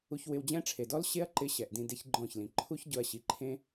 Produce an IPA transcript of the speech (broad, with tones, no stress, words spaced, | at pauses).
u˧çwɪ˧wd͡ʑɛ̃˦ʈ͡ʂʰe˨ dɔ˦l ɕe˦ɐ̯ ǃɪ˦ɕɛ˨ʔdĩ˧ de˦çɡ͡ǃɔ̃˦˨çlĩ˨ ǃʰu˦ç ɟʊ˧ɐ̯ɕi˨ ǃʰẽ˦